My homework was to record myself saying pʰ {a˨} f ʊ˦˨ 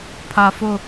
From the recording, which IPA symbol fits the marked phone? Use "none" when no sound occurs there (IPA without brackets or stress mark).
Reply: a˨